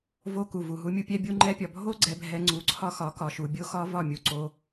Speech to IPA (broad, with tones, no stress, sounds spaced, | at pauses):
v o˧ k u˨ v u˨ ɦ u˧ mʲ u˦ pʲ ɛ˧ bʲ u˧ ŋ͡ǃ ɛ˧ pʲ ɒ˨ bʱ o˦ ɡ͡ǀ ɛ˧ bʱ ɛ˧ ŋ͡ǀ u˧ ǀʰ ɒ˦ x ɒ˨˦ k ɒ˨ ʃ u˨ bʲ o˦ x ɒ˦ v ɒ˦˨ mʲ u˧ ǀ o˧